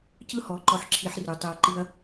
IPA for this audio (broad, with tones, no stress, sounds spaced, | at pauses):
c ɯ˦ h ɔ˨˦ ǃ ɔ˧ ħ ǁʰ i˧ ħ r ʉ˨ tˤ e˧ ɐ̯ ǃ i˦ ɐ̯